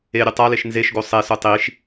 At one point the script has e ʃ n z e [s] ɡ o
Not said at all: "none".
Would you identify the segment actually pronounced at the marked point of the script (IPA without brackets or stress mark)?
ʃ